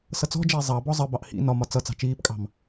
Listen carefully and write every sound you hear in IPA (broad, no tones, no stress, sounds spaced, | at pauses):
s ʌ t͡s ɔ̤ d͡ʒ ɛ e̯ zˤ ɑ b ɔ zˤ ə b ɑ ʔ h ḭ n ɒ m ɒ t͡s ʌ t͡s ɑ̤ t͡ʃ iː p kʼ ɑ̤ m